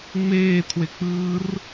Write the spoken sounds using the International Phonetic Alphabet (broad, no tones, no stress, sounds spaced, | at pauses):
ŋ͡m eː tʰ w e k͡p ɯː r